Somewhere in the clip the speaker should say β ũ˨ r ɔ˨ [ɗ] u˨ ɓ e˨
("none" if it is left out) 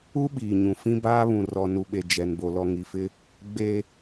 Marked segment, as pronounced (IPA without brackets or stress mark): n